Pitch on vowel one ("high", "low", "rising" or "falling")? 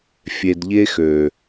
low